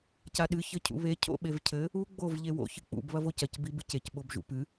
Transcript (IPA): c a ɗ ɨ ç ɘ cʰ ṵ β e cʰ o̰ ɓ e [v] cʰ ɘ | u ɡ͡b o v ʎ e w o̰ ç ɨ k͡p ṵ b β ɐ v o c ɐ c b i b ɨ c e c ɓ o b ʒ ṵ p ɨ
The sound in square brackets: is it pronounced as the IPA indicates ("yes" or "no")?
yes